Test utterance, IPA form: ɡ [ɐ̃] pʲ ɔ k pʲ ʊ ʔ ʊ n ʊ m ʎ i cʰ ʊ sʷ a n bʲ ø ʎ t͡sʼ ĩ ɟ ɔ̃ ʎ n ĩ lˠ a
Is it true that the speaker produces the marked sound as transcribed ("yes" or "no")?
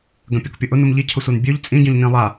yes